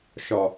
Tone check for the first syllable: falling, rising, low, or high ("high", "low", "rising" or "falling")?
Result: low